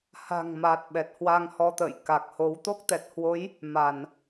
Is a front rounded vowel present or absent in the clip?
absent